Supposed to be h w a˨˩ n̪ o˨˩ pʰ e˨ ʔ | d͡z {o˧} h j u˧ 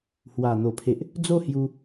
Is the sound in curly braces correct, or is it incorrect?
incorrect